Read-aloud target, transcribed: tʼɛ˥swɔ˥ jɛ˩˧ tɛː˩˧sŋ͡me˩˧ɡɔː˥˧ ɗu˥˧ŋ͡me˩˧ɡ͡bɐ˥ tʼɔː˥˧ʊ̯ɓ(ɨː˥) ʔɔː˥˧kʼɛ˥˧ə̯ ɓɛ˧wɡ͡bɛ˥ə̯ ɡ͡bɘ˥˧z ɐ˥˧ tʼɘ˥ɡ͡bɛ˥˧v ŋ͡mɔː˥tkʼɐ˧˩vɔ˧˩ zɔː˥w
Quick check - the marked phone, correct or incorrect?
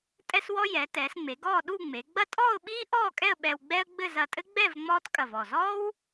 incorrect